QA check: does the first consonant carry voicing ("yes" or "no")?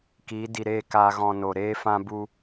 no